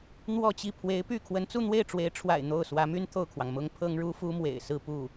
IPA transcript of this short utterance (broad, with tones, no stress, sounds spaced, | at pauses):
n̪ w ɔ˥˧ t͡ɕ i˥˩ pʰ w e˧˥ ɪ̯ p y˥˩ kʰ w ə˧˥ n t͡s u˥˧ n̪ w e˥˩ ɪ̯ ʈ͡ʂ w e˧˥ ɪ̯ ʈ͡ʂʰ w a̰˨˩ ɪ̯ n̪ o˥˩ ʊ̯ s w ä˧˥ m y˥ n t̪ʰ o˥˩ ʊ̯ kʰ w ɑ˩ ŋ m ʊ˥ ŋ pʰ ɤ˥ ŋ ɻ u˥ f u˥ m w ḛ˨˩ ɪ̯ s ɹ̩˥˧ p u˥˩